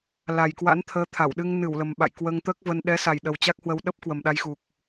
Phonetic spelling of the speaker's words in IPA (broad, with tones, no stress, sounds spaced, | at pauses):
l a˨˩ j k w a̰˧˥ n t̪ʰ əː˨˦ t̪ʰ a˧˩ w ɗ ɨ˧ ŋ n ɨ˧˩ w l ə˨˩ m ɓ a̰˧˨ j k w əː˧ ŋ t̪ əː˦˥ k̚ v ə˧ n ɗ ɛ˨˦ s a˨˩ j ɗ ə˨˩ w t͡ɕ a˦˥ k̚ h w ə˧ w ɗ ə˦˥ p̚ k w ə˨˩ m ɗ a˧ j x u˨˩ k̚